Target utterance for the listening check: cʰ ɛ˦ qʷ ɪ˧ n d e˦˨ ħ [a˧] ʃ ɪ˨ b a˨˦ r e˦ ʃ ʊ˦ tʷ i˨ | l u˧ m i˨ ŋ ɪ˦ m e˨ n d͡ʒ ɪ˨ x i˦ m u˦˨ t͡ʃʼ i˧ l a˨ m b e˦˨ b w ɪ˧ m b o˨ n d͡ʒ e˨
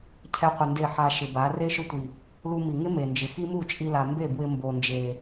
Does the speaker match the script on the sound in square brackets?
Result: yes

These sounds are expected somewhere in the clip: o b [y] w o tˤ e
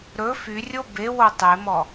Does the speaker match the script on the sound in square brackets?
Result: no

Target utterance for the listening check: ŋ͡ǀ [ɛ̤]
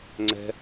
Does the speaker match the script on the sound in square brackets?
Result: yes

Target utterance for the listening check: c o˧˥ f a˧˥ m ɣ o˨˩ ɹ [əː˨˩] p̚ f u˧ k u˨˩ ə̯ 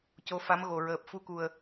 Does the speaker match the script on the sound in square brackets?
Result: yes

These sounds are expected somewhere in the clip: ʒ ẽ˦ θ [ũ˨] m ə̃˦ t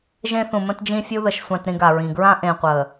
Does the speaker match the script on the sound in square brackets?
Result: yes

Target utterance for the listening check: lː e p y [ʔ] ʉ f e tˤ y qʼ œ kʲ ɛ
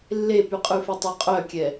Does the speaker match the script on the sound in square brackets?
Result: no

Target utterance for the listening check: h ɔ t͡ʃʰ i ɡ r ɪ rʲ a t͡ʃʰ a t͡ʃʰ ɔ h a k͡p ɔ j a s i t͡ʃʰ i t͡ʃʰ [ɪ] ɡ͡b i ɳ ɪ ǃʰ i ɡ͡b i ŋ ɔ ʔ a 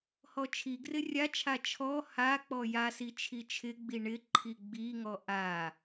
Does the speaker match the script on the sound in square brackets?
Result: yes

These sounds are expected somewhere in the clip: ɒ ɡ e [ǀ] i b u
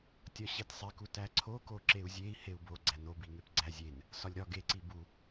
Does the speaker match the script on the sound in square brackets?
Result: yes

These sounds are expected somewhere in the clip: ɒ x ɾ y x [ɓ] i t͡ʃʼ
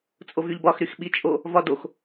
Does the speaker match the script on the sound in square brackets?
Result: yes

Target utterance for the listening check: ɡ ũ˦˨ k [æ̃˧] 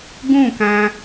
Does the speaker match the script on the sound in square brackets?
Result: yes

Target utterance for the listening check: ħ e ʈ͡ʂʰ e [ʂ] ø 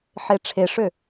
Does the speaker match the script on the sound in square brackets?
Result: yes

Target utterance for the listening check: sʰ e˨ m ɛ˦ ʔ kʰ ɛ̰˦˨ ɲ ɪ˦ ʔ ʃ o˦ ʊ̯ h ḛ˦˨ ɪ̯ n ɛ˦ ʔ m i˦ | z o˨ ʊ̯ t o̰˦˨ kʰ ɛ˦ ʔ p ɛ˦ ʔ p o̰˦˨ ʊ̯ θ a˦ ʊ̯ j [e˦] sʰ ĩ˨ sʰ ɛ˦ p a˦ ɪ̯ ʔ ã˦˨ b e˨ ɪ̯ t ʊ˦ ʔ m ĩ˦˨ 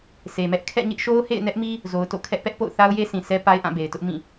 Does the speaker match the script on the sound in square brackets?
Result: yes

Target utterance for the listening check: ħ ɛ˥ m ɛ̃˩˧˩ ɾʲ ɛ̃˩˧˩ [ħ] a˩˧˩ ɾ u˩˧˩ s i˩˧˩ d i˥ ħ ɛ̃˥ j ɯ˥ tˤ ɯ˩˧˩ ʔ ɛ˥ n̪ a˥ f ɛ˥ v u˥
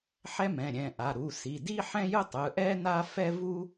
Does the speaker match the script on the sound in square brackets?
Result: no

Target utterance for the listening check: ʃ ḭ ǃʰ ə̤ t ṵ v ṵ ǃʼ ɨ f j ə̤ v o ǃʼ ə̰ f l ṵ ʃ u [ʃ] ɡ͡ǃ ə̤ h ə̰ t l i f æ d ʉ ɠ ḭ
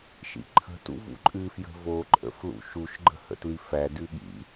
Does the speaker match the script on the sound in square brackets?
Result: yes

